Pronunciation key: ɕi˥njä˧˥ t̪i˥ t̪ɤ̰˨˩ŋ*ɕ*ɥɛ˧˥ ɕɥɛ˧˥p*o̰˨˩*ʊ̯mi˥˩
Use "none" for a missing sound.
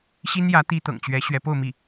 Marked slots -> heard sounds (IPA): t͡ɕ, o˥˧

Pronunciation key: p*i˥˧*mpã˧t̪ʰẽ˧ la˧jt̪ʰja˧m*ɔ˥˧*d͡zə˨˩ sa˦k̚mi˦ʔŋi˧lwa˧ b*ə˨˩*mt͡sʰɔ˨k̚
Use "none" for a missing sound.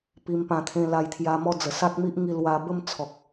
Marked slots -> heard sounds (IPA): i˧, ɔ˥˧, ə˥˧

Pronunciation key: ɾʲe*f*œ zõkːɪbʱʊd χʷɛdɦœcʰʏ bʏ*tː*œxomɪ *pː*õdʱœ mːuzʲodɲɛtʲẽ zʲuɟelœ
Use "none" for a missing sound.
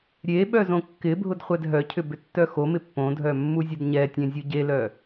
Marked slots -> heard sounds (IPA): ɓ, tː, pː

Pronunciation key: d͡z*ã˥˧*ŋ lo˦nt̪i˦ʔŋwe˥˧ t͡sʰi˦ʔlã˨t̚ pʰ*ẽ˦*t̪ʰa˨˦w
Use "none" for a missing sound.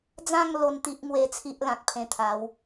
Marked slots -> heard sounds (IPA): ã˥˧, ẽ˧

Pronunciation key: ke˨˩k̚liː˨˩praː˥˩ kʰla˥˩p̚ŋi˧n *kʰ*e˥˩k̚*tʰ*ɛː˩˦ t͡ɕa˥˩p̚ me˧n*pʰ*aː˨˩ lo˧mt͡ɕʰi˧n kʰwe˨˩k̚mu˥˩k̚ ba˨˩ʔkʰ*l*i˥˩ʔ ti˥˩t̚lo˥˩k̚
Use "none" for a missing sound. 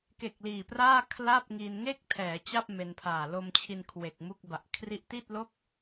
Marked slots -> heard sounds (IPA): ŋ, tʰ, pʰ, r

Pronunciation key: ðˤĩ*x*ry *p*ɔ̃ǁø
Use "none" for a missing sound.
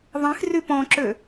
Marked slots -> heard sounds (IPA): x, p

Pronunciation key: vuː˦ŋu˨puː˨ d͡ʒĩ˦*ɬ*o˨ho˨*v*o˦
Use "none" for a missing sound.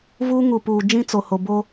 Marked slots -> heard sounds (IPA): t͡s, b

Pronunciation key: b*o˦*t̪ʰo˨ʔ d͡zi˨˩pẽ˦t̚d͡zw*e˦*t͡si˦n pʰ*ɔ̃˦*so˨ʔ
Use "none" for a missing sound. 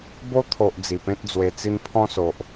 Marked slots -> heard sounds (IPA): o˦, e˧, ɔ̃˦

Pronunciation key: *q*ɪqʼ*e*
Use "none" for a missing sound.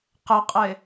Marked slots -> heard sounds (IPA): q, e

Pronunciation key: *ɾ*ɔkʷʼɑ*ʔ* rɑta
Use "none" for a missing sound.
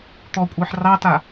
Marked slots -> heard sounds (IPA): t̪, ħ

